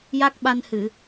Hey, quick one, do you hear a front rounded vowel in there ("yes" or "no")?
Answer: no